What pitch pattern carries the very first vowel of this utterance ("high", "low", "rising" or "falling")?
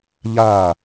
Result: falling